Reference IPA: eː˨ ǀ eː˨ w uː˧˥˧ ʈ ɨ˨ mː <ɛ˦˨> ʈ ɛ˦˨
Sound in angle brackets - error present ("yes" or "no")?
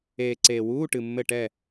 yes